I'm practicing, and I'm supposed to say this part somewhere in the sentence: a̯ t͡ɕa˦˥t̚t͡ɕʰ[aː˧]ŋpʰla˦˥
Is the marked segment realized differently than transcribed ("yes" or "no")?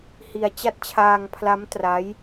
no